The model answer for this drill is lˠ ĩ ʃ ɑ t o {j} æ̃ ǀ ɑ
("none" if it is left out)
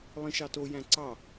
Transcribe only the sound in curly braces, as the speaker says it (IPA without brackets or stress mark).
j